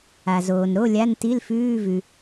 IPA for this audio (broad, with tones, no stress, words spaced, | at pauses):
a˩zoː˩n ɾo˧˥˧lʲa˧˥˧nti˧˥˧l fʉː˧˥˧vʉ˩